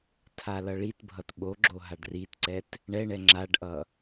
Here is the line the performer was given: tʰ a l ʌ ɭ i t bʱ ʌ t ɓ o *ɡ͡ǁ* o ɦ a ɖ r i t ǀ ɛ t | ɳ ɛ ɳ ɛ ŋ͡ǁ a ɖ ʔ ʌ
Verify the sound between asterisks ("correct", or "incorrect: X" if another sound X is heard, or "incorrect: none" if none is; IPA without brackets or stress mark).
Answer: correct